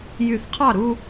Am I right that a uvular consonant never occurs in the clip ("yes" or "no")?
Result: no